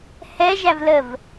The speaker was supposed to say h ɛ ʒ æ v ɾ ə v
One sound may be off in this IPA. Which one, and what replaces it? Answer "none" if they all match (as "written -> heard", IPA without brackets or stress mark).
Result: ɾ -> l